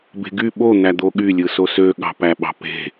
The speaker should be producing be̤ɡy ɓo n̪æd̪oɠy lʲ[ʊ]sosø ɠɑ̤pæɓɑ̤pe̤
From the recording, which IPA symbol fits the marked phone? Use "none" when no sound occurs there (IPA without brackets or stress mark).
ɯ